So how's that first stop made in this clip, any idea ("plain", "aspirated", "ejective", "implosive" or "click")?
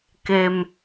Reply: plain